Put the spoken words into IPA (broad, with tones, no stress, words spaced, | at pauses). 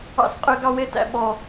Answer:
ɑ̰˦sqʼø˦ɡ ɑ˦we˦tæ̰˦ ɓɔ˦